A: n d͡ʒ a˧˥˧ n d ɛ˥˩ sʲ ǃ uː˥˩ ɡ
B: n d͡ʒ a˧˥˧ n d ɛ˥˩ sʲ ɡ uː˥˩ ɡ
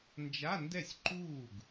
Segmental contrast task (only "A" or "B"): A